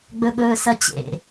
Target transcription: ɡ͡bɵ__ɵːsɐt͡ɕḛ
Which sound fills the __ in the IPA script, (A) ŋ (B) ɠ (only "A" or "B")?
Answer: B